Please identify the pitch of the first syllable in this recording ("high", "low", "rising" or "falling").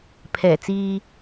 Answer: low